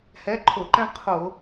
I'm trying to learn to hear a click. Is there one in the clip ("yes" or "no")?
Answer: yes